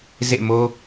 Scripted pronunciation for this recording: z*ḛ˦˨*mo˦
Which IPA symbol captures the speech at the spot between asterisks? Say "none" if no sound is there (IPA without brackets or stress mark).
ḛ˦˨